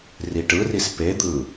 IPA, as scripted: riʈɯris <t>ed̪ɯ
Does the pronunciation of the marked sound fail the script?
yes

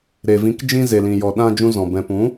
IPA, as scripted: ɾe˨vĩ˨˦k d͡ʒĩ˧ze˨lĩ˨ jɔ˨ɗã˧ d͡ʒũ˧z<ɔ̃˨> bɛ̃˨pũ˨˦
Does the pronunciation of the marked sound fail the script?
no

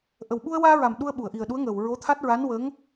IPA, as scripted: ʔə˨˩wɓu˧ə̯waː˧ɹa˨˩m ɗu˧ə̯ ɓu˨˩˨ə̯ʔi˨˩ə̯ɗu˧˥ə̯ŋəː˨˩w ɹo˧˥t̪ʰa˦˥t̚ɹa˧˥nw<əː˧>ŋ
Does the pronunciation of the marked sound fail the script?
yes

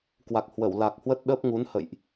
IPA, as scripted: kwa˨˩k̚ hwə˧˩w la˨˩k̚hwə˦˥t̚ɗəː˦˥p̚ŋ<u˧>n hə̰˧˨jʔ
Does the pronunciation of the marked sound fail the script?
yes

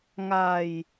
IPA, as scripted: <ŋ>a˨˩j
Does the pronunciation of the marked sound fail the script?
no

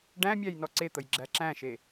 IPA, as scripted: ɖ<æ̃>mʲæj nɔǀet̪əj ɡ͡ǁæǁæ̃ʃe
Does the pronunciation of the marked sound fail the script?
no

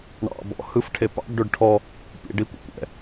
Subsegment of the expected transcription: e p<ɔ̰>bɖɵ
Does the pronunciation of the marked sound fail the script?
yes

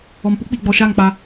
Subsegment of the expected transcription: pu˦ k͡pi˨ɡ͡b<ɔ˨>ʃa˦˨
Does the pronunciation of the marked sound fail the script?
no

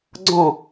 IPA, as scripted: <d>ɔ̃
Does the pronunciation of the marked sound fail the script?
yes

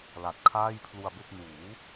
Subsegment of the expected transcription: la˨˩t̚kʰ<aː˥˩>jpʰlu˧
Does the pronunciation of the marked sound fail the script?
no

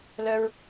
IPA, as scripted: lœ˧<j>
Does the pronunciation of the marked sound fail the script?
yes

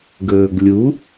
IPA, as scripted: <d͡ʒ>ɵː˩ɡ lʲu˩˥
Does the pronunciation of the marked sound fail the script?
yes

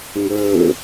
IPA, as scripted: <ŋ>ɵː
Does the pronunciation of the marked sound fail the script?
no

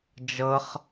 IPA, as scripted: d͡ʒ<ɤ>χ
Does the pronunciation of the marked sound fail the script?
no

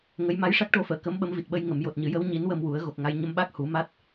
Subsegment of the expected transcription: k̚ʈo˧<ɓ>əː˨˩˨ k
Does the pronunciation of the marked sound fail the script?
yes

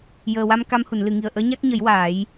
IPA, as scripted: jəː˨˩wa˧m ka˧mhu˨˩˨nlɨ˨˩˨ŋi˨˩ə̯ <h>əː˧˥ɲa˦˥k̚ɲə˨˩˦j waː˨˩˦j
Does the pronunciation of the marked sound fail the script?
yes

